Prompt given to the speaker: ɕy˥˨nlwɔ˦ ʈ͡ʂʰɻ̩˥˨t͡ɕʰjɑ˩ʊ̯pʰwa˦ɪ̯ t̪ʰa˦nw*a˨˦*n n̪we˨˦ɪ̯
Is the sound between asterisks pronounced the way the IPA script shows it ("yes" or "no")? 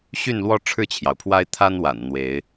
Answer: no